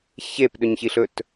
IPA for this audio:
ç e p ɗ ɵ ɲ ç i ɬ ɵ t

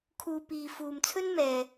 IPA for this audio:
kʰ uː˧ p iː˨ f uː˨ m t͡sʰ ɵ˥ n m ɛː˨

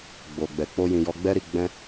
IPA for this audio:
ɡ͡b o˨ ɡ͡b ɛ˨ k͡p o˧ j ĩ˨ j ɔ˧ ɡ͡b ɛ˦ ɾ i˦˨ ɡ͡b ɛ̃˧

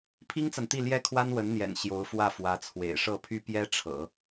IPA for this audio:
pʰ i˥ ŋ t͡s a˨ n t̪ i˥˩ l j ɛ˥ kʰ w a˥ n w ə˧˥ n n̪ j ɛ̰˨˩ n ɕ j o˧˥ ʊ̯ f w ä˥˩ f w ä˧˥ t͡sʰ w ḛ˨˩ ɪ̯ ʂ ɤ˥˩ pʰ y˥ p j ɛ˥ ʈ͡ʂʰ ɤ̰˨˩˦

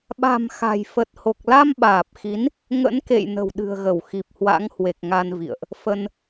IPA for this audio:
ɓ a̤˨˩ m x a̤˨˩ j f ə˨˩ t̚ h o˨˩ k̚ l a˧ m ɓ aː˨˩ p̚ x i˨˦ n | ŋ ə̰˧˥ n k ḛ˧˨ j n ə̤˨˩ w ɗ ɨ̤˨˩ ə̯ ɣ ə˧˩ w x i˨˩ p̚ h w a̰˧˥ ŋ h w e˨˩ k̚ ŋ a˧ n v ḭ˧˨ ə̯ ʔ | f ə˧ n

